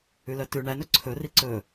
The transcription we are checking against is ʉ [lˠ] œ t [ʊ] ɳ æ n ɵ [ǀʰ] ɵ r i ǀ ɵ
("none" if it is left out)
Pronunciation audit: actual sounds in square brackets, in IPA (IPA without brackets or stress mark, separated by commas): l, ʉ, ǀʰ